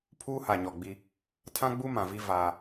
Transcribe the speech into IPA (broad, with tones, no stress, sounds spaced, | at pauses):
pʰ uː˦ h a˨ ɲ ɔ˨ ɡ͡b i˦ | tʰ ã˦ ɡ͡b u˦ m ã˨ v i˦ v aː˦